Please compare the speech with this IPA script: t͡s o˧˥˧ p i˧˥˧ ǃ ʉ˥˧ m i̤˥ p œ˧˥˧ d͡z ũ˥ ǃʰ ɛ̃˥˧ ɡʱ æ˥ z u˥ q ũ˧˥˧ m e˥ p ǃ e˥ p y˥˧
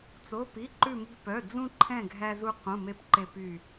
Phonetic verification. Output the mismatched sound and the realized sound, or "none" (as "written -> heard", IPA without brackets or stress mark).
none